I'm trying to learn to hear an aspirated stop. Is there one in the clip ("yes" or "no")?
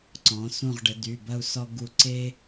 no